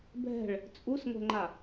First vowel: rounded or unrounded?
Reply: unrounded